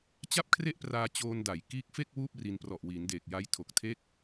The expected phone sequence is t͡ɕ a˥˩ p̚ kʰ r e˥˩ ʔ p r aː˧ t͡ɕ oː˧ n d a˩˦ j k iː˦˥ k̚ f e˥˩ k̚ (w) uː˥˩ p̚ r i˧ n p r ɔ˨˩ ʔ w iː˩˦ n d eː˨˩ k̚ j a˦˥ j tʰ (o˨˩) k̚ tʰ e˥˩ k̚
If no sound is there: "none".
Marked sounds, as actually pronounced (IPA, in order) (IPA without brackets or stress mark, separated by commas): w, o˨˩